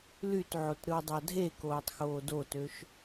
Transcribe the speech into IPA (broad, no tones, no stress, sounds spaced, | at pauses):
l y t ʕ o t ɾ ɯ w dˤ ɑ dʱ e k oː tˤ x oː d o t ø ʃ